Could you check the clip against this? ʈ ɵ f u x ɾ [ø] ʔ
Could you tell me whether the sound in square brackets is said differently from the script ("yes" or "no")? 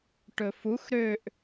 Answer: no